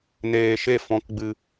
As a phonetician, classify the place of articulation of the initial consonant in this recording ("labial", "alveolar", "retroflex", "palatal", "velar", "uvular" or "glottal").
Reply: alveolar